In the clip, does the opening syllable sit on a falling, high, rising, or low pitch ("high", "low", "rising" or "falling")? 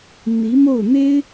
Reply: rising